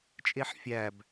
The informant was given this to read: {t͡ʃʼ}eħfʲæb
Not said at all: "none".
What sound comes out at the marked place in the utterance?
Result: t͡ʃʼ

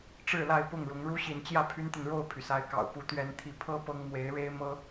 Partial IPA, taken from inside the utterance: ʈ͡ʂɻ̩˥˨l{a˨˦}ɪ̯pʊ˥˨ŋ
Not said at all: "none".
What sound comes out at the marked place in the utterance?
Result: a˥˨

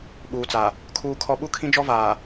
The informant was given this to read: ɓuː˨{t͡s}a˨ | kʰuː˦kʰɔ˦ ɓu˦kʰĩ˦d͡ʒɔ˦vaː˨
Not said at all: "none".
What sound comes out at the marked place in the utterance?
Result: t͡s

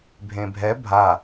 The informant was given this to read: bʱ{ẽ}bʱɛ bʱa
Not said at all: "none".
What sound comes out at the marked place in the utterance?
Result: ẽ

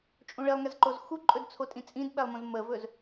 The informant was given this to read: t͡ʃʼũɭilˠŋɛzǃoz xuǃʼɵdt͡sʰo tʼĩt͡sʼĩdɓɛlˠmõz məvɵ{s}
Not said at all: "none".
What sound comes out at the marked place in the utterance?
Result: z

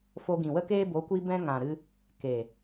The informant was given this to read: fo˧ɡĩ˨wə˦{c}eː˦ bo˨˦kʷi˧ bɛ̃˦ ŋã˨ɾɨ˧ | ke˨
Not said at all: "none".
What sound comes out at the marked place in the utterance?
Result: k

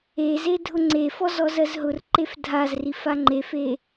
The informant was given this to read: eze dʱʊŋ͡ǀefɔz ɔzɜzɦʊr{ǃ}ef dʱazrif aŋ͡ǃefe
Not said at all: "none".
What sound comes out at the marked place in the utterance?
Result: ǃ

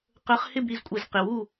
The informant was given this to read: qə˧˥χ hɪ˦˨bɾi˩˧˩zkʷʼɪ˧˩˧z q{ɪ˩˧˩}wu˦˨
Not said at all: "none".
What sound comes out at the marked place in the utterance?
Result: ɪ˩˧˩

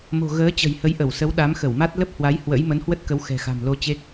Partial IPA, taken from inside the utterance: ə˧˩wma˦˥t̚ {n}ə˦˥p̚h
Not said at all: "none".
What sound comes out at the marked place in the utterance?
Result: l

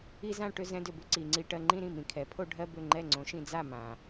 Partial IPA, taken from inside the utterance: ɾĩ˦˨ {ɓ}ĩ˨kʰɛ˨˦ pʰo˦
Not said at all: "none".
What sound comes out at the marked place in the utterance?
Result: m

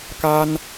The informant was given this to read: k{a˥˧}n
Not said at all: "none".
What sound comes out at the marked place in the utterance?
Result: a˥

